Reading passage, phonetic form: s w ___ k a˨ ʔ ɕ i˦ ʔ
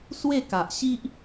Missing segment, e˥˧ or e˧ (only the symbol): e˥˧